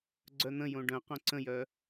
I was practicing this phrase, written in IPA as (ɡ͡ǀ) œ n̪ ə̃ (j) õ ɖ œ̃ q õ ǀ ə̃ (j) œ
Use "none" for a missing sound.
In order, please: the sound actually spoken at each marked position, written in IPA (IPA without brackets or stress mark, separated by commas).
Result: ɡ͡ǀ, j, j